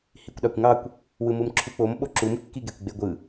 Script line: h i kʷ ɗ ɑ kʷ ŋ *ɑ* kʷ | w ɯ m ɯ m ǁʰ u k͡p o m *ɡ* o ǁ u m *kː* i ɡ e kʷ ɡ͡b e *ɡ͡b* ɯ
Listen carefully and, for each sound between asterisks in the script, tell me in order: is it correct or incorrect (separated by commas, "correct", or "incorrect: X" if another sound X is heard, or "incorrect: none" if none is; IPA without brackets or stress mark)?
correct, incorrect: ɓ, correct, incorrect: ɡʷ